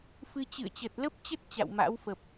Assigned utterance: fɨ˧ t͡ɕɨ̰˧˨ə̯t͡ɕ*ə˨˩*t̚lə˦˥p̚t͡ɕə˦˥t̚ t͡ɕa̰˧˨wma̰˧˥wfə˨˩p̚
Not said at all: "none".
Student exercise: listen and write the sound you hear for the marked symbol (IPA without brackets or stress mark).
ə˨˩